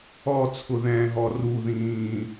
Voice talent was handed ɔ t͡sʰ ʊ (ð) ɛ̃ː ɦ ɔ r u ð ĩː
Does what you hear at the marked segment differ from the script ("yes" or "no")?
no